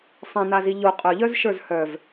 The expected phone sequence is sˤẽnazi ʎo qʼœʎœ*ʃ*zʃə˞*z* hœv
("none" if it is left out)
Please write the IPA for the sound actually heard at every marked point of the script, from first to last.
none, z

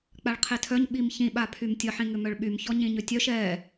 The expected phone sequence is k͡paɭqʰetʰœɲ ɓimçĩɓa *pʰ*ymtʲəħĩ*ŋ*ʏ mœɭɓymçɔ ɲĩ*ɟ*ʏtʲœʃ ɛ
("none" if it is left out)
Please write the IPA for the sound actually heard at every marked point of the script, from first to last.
pʰ, ŋ, ɲ

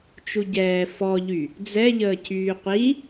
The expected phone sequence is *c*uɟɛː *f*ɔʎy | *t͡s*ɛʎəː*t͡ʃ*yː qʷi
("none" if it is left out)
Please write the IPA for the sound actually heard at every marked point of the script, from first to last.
t͡ʃ, f, d͡z, cʰ

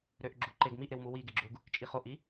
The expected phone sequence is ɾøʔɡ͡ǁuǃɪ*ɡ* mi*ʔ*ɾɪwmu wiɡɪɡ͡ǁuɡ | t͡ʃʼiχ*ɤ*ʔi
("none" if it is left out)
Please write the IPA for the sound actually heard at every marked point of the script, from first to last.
ɡ, ʔ, o

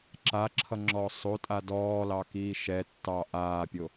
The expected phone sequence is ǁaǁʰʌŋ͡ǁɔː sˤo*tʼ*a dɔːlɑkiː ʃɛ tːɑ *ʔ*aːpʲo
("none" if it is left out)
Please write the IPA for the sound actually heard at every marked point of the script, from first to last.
tʼ, ʔ

